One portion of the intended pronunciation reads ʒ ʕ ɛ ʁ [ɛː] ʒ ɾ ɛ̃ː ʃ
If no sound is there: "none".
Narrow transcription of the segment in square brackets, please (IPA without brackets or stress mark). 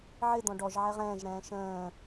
ɛ̃ː